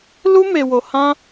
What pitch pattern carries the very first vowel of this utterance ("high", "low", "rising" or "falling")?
high